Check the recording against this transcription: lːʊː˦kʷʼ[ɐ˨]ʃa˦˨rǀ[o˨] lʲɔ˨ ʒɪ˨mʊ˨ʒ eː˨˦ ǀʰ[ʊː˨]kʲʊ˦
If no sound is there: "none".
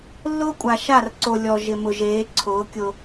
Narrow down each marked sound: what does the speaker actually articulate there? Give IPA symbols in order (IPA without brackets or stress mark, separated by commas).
a˨, o˨, ʊː˨˦